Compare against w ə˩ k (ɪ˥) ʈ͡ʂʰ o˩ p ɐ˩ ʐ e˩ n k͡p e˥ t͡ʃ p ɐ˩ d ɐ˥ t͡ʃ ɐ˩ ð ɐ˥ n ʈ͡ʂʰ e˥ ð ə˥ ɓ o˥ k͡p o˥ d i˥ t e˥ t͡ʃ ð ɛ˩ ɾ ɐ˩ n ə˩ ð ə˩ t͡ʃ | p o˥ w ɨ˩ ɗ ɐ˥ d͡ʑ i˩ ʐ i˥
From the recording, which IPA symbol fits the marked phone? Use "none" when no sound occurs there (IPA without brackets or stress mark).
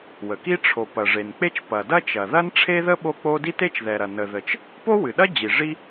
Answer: i˥